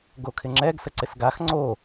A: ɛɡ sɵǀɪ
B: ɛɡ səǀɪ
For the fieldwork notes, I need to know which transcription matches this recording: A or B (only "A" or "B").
B